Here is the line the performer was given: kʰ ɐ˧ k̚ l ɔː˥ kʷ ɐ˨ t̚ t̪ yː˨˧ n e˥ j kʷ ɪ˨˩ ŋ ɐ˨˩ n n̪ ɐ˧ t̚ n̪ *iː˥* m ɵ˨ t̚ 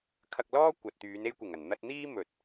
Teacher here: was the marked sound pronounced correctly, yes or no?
yes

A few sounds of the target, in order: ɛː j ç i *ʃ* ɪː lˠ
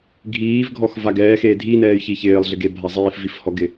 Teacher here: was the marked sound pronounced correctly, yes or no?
no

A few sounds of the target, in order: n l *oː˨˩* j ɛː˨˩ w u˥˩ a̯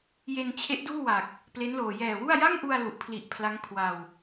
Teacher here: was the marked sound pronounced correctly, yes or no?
yes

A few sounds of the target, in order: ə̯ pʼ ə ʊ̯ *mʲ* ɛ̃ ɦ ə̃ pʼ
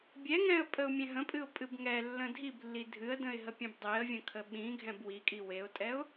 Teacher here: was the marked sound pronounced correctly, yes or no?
yes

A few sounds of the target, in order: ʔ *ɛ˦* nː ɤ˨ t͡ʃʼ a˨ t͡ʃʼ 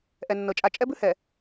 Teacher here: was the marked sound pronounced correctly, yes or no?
no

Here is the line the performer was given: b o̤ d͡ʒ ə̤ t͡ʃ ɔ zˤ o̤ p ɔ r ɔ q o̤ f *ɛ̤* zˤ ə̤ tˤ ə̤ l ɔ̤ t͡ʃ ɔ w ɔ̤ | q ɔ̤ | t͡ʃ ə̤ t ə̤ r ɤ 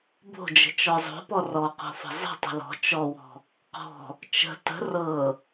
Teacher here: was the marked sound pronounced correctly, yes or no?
no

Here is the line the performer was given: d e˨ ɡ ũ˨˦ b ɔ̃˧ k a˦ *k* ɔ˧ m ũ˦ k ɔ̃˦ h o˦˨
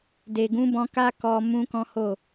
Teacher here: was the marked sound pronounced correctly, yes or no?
yes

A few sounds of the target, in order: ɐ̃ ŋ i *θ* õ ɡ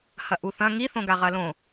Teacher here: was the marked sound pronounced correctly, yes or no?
yes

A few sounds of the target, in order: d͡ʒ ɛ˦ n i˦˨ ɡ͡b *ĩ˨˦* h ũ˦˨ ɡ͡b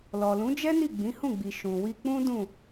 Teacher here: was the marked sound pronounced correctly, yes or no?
yes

